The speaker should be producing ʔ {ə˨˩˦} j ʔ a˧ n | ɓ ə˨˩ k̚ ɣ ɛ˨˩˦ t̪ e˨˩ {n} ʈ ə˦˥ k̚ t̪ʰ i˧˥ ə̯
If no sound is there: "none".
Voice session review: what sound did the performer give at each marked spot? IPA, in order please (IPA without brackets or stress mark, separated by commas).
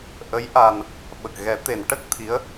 ə˧˥, n